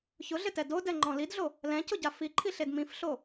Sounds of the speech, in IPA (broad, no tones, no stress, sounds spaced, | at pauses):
ç ʊ ɮ ɪ t ɛ d o d ɛ ŋ͡ǃ ɔ̃ l i d ɮ o | l ɛ̃ c ʊ ɟ a f i ǃʰ i ɬ e d m ĩ f ɬ o